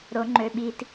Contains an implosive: yes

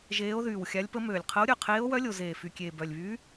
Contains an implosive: no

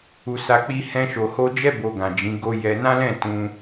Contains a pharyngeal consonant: no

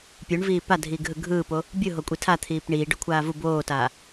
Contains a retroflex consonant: yes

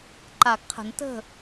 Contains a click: yes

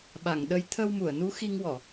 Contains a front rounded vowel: no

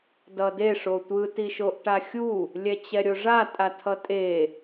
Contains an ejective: yes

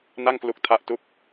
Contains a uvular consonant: no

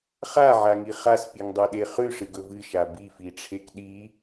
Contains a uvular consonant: yes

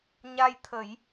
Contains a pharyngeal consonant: no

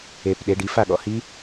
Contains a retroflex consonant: yes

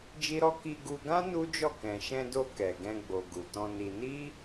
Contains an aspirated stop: no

